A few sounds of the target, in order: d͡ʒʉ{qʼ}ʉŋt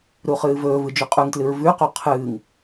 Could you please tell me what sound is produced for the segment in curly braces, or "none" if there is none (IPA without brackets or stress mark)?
qʼ